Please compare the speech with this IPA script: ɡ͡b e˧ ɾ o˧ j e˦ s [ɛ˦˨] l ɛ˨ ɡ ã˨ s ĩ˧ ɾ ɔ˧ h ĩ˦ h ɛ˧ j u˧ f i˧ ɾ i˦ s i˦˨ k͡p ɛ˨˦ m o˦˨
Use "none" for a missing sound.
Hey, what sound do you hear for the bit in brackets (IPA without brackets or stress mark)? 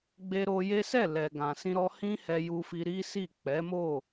ɛ˦˨